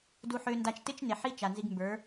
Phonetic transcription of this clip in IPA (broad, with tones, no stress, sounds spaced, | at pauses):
d u˧ ħ ø˧ n d a˧ t͡ʃ t ɪ˦ t͡ʃ n e˨ ħ i˦ t͡ʃ a˨ n z i˧ ɡ m b ə˞˨˦